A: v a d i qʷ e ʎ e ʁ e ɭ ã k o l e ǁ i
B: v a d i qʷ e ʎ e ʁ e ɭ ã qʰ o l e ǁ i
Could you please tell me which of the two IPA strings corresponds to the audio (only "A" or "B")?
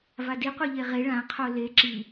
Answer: B